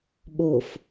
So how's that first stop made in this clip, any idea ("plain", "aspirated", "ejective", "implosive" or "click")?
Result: implosive